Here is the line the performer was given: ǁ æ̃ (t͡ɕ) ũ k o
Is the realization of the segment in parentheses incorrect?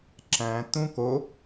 yes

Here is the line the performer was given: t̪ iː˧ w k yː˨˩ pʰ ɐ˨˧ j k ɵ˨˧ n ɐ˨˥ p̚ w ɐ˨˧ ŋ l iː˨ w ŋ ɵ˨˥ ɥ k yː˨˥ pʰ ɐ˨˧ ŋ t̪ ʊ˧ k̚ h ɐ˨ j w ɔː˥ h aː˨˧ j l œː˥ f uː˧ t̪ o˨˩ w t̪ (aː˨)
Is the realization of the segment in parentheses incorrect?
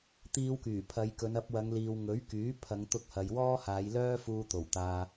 no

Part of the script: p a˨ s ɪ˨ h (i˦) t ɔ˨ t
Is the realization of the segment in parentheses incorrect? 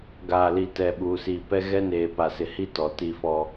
no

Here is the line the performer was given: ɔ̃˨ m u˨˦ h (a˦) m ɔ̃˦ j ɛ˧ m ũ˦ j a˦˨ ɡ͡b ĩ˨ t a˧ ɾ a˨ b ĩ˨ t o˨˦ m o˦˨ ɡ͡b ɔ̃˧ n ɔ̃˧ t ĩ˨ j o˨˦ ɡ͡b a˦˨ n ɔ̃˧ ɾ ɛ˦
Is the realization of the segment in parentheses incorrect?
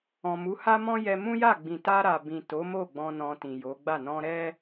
no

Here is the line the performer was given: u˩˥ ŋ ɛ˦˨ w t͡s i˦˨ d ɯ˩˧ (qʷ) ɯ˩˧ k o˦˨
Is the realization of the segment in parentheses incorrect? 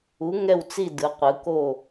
no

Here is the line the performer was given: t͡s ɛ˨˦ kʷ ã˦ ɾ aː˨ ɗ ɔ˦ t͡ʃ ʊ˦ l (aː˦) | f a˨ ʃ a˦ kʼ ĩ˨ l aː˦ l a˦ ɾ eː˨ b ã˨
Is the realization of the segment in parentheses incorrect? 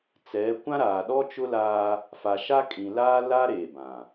no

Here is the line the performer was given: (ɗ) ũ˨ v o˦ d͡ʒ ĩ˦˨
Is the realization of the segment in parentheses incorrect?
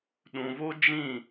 no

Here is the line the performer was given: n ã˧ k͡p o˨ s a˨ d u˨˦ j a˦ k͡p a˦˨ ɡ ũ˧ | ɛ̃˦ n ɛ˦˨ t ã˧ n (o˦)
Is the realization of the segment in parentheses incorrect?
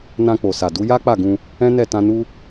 yes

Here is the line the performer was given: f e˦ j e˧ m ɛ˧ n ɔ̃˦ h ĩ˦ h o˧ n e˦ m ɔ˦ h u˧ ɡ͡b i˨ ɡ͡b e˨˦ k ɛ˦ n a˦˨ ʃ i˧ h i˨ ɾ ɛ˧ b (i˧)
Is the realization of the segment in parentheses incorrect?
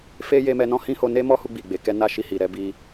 yes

